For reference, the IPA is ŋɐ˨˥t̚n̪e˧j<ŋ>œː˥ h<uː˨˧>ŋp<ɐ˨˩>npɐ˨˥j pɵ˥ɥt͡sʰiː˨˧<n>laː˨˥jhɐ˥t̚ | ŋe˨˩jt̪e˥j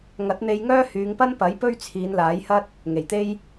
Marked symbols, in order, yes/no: yes, no, no, yes

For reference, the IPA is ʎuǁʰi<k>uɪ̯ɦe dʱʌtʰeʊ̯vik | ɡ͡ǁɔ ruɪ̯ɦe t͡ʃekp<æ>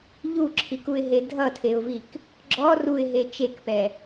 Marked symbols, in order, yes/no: yes, no

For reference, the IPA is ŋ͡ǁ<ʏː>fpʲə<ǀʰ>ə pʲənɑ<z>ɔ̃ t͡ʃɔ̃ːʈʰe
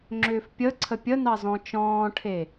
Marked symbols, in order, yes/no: yes, yes, yes

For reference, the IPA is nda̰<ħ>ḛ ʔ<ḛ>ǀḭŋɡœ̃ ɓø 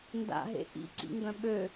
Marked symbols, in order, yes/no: no, no

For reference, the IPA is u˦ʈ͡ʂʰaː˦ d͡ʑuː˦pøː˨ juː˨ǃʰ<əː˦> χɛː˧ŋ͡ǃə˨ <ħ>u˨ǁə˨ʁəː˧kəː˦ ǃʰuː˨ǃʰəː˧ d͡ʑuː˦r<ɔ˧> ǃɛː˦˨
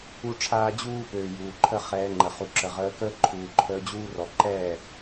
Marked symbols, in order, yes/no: no, no, no

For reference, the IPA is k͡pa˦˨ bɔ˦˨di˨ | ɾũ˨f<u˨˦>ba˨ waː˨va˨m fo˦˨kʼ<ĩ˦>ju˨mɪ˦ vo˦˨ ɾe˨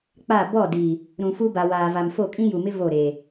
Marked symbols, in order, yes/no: no, yes

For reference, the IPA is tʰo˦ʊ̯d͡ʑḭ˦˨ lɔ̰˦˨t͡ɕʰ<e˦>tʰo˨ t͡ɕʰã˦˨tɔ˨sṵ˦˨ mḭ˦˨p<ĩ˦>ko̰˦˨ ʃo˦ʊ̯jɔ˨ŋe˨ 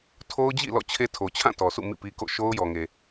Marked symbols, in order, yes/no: yes, no

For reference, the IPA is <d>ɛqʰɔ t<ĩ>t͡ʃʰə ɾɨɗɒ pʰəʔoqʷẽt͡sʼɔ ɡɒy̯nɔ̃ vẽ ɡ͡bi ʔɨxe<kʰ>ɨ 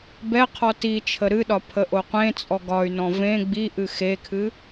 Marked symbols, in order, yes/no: no, no, yes

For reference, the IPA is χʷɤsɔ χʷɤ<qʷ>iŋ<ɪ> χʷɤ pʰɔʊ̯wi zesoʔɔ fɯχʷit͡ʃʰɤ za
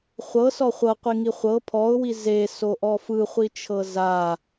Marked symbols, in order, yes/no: yes, no

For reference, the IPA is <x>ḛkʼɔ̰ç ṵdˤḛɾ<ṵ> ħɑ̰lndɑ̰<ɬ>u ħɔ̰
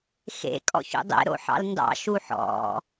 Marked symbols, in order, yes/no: yes, no, no

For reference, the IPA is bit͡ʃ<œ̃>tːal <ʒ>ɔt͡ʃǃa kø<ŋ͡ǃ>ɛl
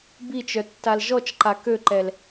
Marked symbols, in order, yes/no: no, yes, no

